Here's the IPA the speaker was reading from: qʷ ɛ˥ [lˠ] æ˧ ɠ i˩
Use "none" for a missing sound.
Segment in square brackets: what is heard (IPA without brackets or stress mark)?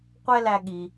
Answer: l